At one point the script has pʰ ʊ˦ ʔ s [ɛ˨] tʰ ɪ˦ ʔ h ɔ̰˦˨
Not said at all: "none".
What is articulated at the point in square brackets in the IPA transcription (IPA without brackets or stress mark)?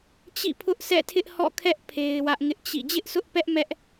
ɛ̰˦˨